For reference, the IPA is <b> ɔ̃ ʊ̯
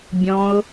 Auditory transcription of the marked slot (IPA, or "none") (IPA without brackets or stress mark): bʲ